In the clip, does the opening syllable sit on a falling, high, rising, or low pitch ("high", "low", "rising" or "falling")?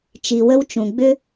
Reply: low